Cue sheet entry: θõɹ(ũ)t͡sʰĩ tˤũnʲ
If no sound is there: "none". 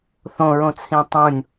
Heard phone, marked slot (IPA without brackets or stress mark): õ